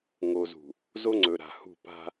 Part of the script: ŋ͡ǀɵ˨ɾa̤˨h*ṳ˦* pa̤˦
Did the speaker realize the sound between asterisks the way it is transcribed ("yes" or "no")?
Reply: no